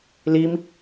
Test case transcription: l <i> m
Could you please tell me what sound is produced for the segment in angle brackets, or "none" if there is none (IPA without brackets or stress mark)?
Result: i